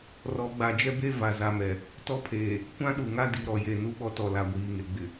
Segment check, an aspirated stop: present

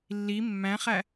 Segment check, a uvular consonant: present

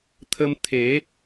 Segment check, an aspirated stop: present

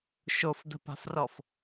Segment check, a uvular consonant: absent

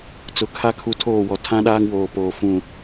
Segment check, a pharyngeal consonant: absent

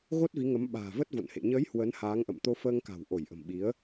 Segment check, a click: absent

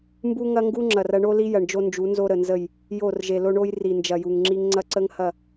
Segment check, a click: present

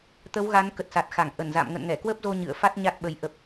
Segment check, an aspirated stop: absent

